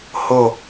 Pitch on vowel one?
falling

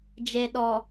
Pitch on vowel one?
low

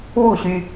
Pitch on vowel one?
falling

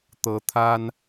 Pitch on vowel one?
rising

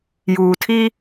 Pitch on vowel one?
low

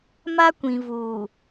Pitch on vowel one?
high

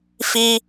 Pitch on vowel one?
high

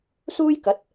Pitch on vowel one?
high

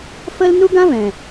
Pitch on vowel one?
high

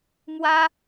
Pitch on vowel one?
high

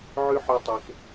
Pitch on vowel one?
high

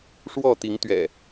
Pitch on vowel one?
falling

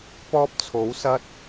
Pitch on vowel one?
high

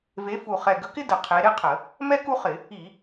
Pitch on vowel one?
rising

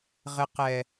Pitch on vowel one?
low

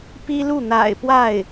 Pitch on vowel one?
high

